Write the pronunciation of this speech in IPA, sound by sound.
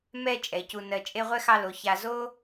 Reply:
m ɛ˦ t͡ʃʼ ɛ˩ c u˨ n ɜ˨ t͡ʃʼ e˦ ʁʷ ɛ˥ x ɑ˦ l o˩ ç a˨ z o˥

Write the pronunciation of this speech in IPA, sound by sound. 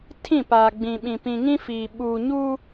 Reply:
tʰ ĩ˦˨ p aː˨ ɡ͡b ĩ˨ ɓ ĩ˨ p ĩ˨ ŋ ĩ˦ f iː˨ ɓ uː˨ ɲ u˦

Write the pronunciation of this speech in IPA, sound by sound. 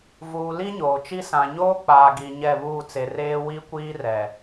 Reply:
v uː˨ l i˦ ɲ oː˨ t͡ʃ i˦ s ã˨ ɲ oː˦ k͡p aː˨ ɡ i˨ ɲ ɛ˦˨ β uː˦˨ t͡s e˨ r eː˦ w i˦ kʷ iː˦ r ɛ˨

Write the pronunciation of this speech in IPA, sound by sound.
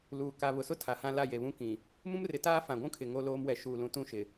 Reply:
l uː˨ k a˨ β ʊ˨ s ʊ˦ tʰ a˨ h ã˦ l a˦˨ j e˨ β ũ˦ k ĩ˨ | m ũ˦ m r ɪ˨ t aː˦ f ã˨ ɡʷ ũ˦ kʰ ɪ˨ ŋ o˦ l oː˦ m w ɛ˨ ʃ uː˨ l ũ˨ t ũ˦ ʃ ɪ˨

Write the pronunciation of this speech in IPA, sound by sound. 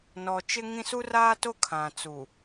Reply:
n ɔ˨ t͡ʃ ɪ˦ ŋ ĩ˦ s u˦ r aː˦ t o˦ kʰ ã˨ t͡s u˨

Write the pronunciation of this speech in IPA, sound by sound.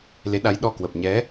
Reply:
l e˨˦ ɗ a˨˦ j ɗ ɔ˧ k w ə˨˩ p̚ ɲ ɛ˨˦

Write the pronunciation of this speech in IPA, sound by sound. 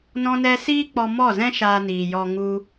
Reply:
n ɔ̃˦ n ɛ˦ s iː˦ k͡p ɔ˧ m ɔ˦˨ z ɛ̃˦ ʃ aː˧ n iː˨ j ɔ˧ ŋ u˧

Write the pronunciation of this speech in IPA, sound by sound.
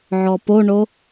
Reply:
ʕ ɔ p o ɳ o

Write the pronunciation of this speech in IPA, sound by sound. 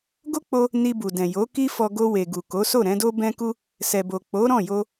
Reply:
ɡ o˦ k͡p o˧ | n i˧ b u˨ d ɛ̃˨ j o˨˦ k i˦ f ɔ˧ ɡ o˧ w e˨ ɡ u˨ k o˨˦ s o˦˨ ɾ ɛ̃˨˦ d o˦ b ɛ̃˧ k u˧ | s ɛ˨ b o˨ k͡p o˨˦ ɾ ɔ̃˦˨ j o˧

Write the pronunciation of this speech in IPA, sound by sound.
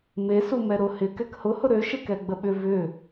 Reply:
m e s u m ɛ ɾ ʊ h ɪ k ɛ k h ʊ h ʊ ɾ ø ʃ ɪ k ɛ ɡ͡b ə ɓ ʏ v ʏ

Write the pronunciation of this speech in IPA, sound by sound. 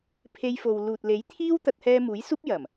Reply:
pʰ e˧ j f o˨ w l uː˨ t̚ l e˨˥ j t̪ʰ iː˥ w t̪ ɐ˧ t̚ h ɛː˧ m uː˨˥ j s uː˥ p̚ j ɐ˨˩ m

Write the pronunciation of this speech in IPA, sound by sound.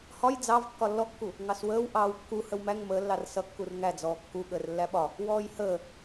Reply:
h ɒ j d͡z ɑ v kː ɒ lː ɔ kː u | ŋ ɑ s w əː w ʔ ɑː w kː u h ə w m æ ŋ m əː lː ɑ r s ʌ kː u r ŋ æ d͡z ɔː kː u ɠ əː r lː æ ɓ ɒ | w ɔː j h əː

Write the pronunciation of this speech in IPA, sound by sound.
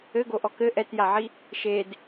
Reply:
ɘ ɡ o ʔ ɔ k ɘ ʔ ɛ t j a ʕ i | ʃ e d

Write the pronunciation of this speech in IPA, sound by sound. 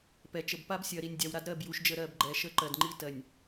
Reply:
p ɛ˨ t͡ʃ ə˨ b p a˦ b sʲ ɜ˨ ɾ i˨ nʲ dʲ a˨ w ɾ a˦ d ɾ ɜ˦˨ b j u˨ ʃ d͡ʒ ə˦˨ ɾ ɜ˦˨ b ɡ͡ǃ ɛ˨ ʃ ə˦˨ ǃ ɜ˨ d ŋ͡ǃ i˦ t ɜ˨ nʲ

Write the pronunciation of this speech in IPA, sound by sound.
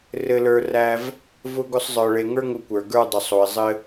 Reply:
r ɘ˧ l ə˞˧ r æ˧ v | v ʊ˥ ɡ ʊ˥ sˤ zˤ ə˞˧ ɭ e˧ ŋ ə˞˥ ŋ ʊ˧ kʷ ə˞˩ ɡ ə˞˧ dˤ ʊ˩ sˤ o˩ ɪ̯ zˤ ɘ˧

